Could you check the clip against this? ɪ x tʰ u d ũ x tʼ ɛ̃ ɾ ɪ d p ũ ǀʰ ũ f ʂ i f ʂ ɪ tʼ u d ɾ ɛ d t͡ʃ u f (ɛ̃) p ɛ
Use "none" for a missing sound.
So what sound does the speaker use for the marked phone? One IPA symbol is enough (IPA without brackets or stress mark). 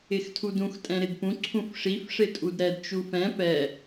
ɛ̃